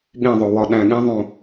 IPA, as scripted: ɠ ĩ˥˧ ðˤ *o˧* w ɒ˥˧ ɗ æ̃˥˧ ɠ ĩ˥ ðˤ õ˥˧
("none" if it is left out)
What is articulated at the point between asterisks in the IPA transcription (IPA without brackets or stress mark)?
o˧